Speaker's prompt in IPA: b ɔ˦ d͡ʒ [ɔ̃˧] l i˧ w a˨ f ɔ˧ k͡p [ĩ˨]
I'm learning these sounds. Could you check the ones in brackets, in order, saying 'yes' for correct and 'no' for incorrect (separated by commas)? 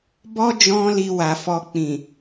no, yes